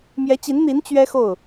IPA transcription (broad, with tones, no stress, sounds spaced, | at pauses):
m j ɛ˧˥ t͡ɕ i˧˥ n n̪ i˧˥ n t͡ɕ ɥ ɛ˥ x o˥˩ ʊ̯